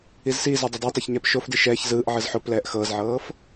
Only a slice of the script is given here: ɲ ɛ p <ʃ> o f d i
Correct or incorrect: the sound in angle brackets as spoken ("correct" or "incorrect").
correct